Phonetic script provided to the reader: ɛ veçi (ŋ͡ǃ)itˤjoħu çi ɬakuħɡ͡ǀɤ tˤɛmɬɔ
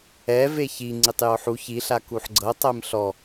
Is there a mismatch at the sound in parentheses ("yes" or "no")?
yes